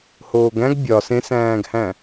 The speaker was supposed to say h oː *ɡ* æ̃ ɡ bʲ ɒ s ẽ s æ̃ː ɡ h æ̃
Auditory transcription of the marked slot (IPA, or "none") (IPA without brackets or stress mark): ɡ